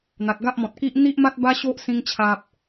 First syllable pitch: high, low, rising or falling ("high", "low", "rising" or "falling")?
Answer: low